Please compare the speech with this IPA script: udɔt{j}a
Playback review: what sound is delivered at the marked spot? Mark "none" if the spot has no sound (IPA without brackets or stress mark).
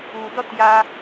j